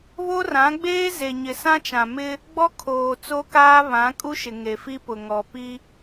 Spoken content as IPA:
β o˦ r ã˨˦ ɡ͡b eː˦ z e˨ ɲ ɪ˨ s ã˦ t͡ʃ ã˨ m ɪ˦ | ɡ͡b ɔ˦ kʰ oː˨ t͡s o˦ k aː˦ β ã˨˦ kʼ u˦ ʃ ɪ˨ ŋ e˨ f i˦ p ʊ˨ ŋ ɔ˨ p i˦

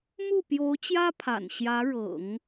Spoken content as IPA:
m u˥˩ p j o˧˥ ʊ̯ t͡ɕ j ä˥ pʰ a̰˨˩ n ɕ j ä˧˥ ɻ ɤ̰˨˩˦ ŋ

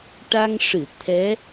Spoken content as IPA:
ʈ a˧ ŋ ʂ ɨ˨˩˨ t̪ʰ ɛ˧˥

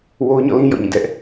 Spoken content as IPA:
w o˦ ʊ̯ ɲ ɔ̰˦˨ l ĩ˦ j ɔ̰˦˨ ɲ ĩ˦˨ d ɛ˦ ʔ

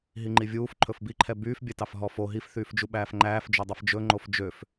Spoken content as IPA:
ɦ i ŋ͡ǃ i vʲ uː f ǃʰ ɵ f b i ǃʰ ɛ b yː f bʲ ɛ t ɑ f ɦ ɔ f o ɦ i f θ yː f d͡ʒ u ɓ æː f ŋ͡ǃ æː f d͡ʒ o dˤ i f d͡ʒ ɵ ŋ͡ǃ o f d͡ʒ ø f

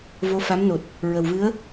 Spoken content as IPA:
v o˧˥ f a˧˥ m n o˨˩ t̚ | ɹ ə˨˩ w v ɨ˧˥ ə̯

